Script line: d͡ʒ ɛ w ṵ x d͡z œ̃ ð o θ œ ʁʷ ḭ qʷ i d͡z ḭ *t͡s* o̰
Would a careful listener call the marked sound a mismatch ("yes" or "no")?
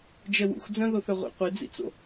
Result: no